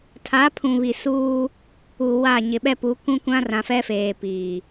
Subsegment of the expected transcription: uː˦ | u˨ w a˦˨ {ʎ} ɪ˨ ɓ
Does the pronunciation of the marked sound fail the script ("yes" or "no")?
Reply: yes